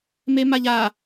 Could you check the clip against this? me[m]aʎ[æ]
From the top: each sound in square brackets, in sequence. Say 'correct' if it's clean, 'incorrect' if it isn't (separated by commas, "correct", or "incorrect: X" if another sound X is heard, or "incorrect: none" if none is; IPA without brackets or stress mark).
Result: correct, incorrect: a